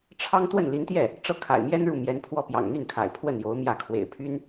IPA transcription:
ʈ͡ʂʰɑ˥ŋ t̪wə˥˩nli˧˥nt̪jɛ˥˩ | ʈ͡ʂɤ˥˩kʰa̰˨˩ɪ̯mjɛ˥n ɻu˥˩mjɛ˧˥npʰwɔ˥˩pjɑ̰˨˩ŋ n̪y˥˩nkʰa̰˨˩ɪ̯pʰwə˥˩n jo˧˥ʊ̯mjä˥˩ kʰwḛ˨˩ɪ̯pʰy˥n

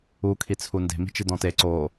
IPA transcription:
u kʰit͡sʰunde̤ mi̤t͡ʃidɔ̃te ǀoː

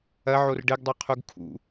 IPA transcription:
ɐʕor ɖɘɡdˤoqʰuɡ kʰṵ

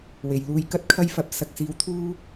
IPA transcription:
we˨˩jluː˧j kɐ˥t̚kʰɐ˥jfɐ˧p̚ sɐ˨k̚siː˨˥w t̪ʰuː˥

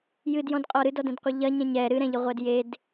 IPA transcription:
jɨdjɔ̃dqʼɔ ɾɨdɔdɛ̃dqʷɨ ʎɐɲɛ̃ ɲɛ ɾɨɾɛ̃ʎɨʁʷɛd jed

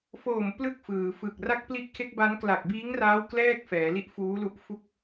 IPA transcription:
foː˨˩m plɯ˥˩k̚fɯː˩˦fɯ˨˩k̚ ra˦˥k̚pli˦˥ʔkʰe˦˥k̚ba˦˥n kla˨˩k̚biː˦˥ŋraː˦˥w klɛː˥˩k̚ fɛː˩˦li˥˩ʔfuː˦˥lu˦˥ʔ fu˦˥k̚

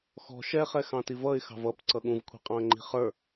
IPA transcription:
xɔ̤ ʃɛχɛxɑ̃ tivʌɪ̯xɑ̤v ʌp ǀʌɠũvkʷʰi̤ qʼɑ̃ə̯ŋ͡ǃi̤χə˞

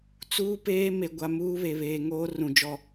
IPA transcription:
t͡suː˦peː˦ me˨ɡʷa˨ muː˦βe˨ βeː˨ŋoː˦rũ˨ d͡ʒɔ˦˨

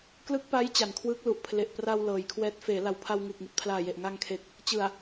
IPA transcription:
klɯ˦˥k̚pa˦˥j t͡ɕa˨˩nkʰwɯː˦˥k̚lu˨˩ʔpʰle˨˩ʔ pra˧w lɤː˨˩jkʰwɛː˦˥t̚ feː˩˦la˨˩w pʰa˧wŋɯː˨˩k̚ŋi˨˩t̚ pʰlaː˨˩je˨˩ʔ ŋa˧ŋkʰe˨˩k̚ | t͡ɕɯ˨˩a̯

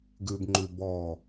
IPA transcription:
ɡʉbŋ͡ǃʉ bɔ

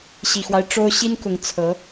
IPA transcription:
ɕi˨˩xwa˦ɪ̯ ʈ͡ʂo˥ʊ̯ ɕi˥nkʊ˧˥ŋ t͡sʰɤ˧˥

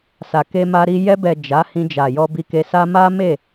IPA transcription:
sa˨ke˧ma˧ɾi˧ jɛ˧bɛ˨ d͡ʒa˨˦hĩ˧ d͡ʒa˨jɔ˧bi˧ke˧ sa˦ ma˦me˦˨

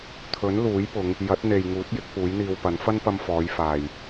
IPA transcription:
t̪ʰɵ˨˥nluː˨˥jpʊ˨˧ŋ | jɐ˨˥t̚n̪e˨jŋuː˨˥t̚ jɪ˨˥k̚puː˨˥jn̪iː˧wpɐ˨˥n fɐ˥npɐ˧mfɔː˨˧jfaː˨j

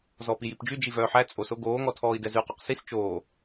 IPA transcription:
zɔːpijipd͡ʒy d͡ʒivœːħæ t͡sʼoso ɡoːŋɔ tʰɔːi̯dɛzʉqɔq sis t͡ʃoː

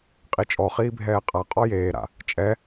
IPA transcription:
qʼit͡ʃʼɔ χiːbʱɛːqʼa qʼɔjeːɾa̰ | t͡ʃʼɛ

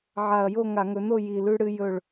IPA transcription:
ʕa˨˩ɐ̯jo˥˨ ŋa˧˩˧ŋɵ˩˥no˥˨ ji˨˩lʉ˦ɽɨ˦ jɵ˥˨ɭ

